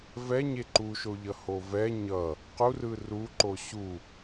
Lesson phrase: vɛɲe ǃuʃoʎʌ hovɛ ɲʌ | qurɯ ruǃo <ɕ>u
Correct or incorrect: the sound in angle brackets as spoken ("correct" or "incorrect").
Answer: correct